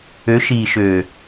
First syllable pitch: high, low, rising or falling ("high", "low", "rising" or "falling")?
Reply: rising